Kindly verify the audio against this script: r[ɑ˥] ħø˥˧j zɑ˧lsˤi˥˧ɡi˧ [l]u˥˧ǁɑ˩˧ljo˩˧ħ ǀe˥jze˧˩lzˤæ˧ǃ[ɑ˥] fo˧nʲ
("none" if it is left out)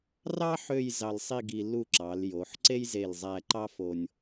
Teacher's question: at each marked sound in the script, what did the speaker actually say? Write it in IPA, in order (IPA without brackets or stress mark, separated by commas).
ɑ˥, l, ɑ˥